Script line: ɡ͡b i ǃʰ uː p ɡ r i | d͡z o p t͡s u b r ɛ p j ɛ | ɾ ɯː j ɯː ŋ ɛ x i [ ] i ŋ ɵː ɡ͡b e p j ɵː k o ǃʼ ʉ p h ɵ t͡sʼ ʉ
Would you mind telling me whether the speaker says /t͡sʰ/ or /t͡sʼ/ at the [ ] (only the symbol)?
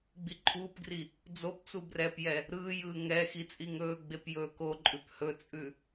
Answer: t͡sʼ